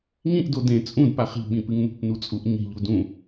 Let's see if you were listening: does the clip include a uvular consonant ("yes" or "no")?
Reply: yes